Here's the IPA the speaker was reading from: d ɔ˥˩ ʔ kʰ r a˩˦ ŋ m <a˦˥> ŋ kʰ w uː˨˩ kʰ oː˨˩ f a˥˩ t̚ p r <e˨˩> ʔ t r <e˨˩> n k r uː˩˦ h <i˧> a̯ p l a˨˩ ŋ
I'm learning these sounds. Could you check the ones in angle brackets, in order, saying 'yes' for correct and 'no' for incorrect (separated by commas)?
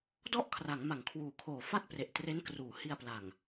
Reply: no, yes, no, yes